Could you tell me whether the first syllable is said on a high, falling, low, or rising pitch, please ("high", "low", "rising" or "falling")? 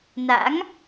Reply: rising